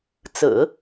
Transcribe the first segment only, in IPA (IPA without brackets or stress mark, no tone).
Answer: t͡s